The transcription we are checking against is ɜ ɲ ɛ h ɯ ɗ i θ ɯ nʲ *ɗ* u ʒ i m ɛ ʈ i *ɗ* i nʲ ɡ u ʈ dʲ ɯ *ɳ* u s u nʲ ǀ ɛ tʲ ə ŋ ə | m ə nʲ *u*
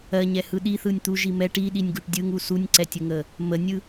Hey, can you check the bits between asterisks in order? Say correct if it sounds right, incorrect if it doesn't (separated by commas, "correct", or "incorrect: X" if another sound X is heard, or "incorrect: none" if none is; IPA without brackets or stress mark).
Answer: incorrect: t̪, correct, incorrect: ŋ, incorrect: ɯ